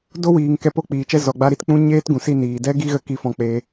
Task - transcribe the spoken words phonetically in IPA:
d o˦ w iː˨ ŋ k ɛ˧ p o˦ k͡p iː˨ t͡ʃ ɛ˦ z ɔ˨ ɡ͡b a˦ ɾ i˦ t k͡p ũ˦ ɲ eː˦ t ɡ ũ˨ s i˧ n iː˨ d ɛ˦ ɡ i˦ ɣ ə˦ k i˦ f ɔ̃˧ k͡p e˧

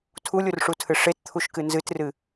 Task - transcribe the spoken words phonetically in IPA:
tʰ u lʲ u r ʂ u tʰ ɨ ʂ e t t̪ʰ u ʃ k ɨ n z ɨ t r ɨ

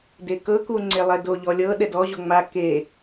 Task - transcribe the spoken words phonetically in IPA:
d e k ɤ k u ŋ͡ǀ e lˠ ɛ d o ʎ ɔ lʲ ɤ ɗ ɛ d ɔ ʑ o ŋ͡m a k e

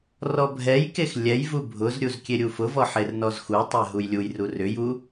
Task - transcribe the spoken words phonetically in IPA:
r ɔ bʱ ɛ j k e x lʲ ɛ j v u bʱ ʊ z ɾʲ u z kʲ e ɾʲ u f ʊ v ɔ ħ e r n ɔ z x u tˤ ɛ ɦ u j lʲ u j r u r ʏ j u

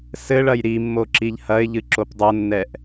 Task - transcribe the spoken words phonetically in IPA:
s ɘ ɭ ɐ j ɾ i mː o ǁ i ʎ h ɐ ɪ̯ ʎ ɨ ǁ o p dˤ ɐ nː ɛ ʔ

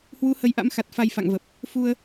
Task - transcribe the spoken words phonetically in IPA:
h w u˨˦ h ə˨˦ j ʔ a̰˧˥ m x a˨˩ t̚ f a˧ j f a̰˧˨ ŋ v ə˨˩ p̚ | f u˧ ə̯

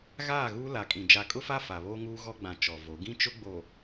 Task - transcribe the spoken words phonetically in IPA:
ɣ aː˦˨ ɣ uː˦ l a˨ kʼ ĩ˨ d͡ʒ a˨ kʼ ʊ˦ f a˦ f a˨ β oː˦ ŋ uː˦ ɣ ɔ˦ ɡ͡b ã˨ t͡ʃ ɔ˨ v o˨˦ ɡ ĩ˦ t͡ʃ ʊ˦ ɡ͡b o˨

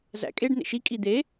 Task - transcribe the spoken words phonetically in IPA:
z æ̰ kʼ e ɖ n̪ ḛ ʃ i kʼ i d̪ e

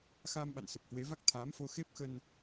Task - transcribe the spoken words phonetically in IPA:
x aː˧ m ɓ a̰˧˨ n s ə˨˩ p̚ h w e˨˦ v a˦˥ k̚ t̪ʰ aː˨˦ m f o˧ x e˦˥ p̚ x ə˧ n

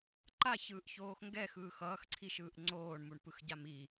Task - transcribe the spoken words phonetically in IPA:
ǃ a ç ɯː ʔ ç oː x ŋ ɡ ɛ x ɯː x ʌː x ǀʰ i ʃ ɯː ʔ ŋ͡ǀ oː ɳ m u ɳ p ɯ x ɟ a m i

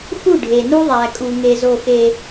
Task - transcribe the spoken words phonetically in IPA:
x u˦˨ ɖʱ e˨ n u˦ ðˤ æ˨ kʼ u˦ ŋ e˦ z o˦˨ x e˨

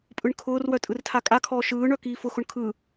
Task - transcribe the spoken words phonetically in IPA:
pʼ ɯ ɳ kʰ ʊː r w œ tʼ ɯ r tʰ a kʼ a kʰ ɔː ʃ ɯː ɳ œ k iː f ʊ x ʊ ɳ kʰ ɯ

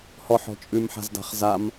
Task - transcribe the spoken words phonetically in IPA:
h ɔ ħ ɔ̤ t͡ʃʼ ʉ m ħ a̤ z d a̤ χ z a m

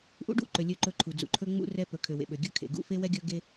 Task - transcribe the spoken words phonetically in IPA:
ʔ ṵ˦ ɖ ṵ˦˨ ǃ ø˨ lʲ ø˦˨ ǃ ɵ˦˨ ǃʰ u˨ d͡z ṵ˨ ǃʰ ɵ˦ ŋ͡m ṵ˦ r ɛ˦ p ɵ˨ kʰ ø˨ w ḛ˨ ɓ ø˨ ɡʲ ɵ˦ kʰ ḛ˨ ɡ ṵ˦ f e˦ w ɛ˦ ɡʲ ɵ˦ ɡ e˦

